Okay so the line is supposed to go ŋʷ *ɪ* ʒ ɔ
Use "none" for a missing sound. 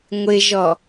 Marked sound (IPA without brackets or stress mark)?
ɪ